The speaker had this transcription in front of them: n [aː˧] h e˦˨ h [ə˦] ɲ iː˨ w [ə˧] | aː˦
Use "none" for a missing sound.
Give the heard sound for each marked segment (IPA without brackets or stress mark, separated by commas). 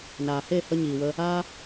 aː˨, ə˧, ə˧